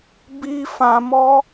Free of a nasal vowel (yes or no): no